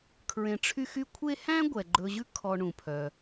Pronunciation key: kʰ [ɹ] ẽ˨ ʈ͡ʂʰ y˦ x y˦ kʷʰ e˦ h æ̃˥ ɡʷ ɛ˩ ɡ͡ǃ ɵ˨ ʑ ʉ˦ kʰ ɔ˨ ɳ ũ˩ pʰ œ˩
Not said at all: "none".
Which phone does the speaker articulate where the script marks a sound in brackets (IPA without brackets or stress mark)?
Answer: ɹ